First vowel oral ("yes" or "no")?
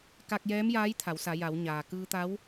yes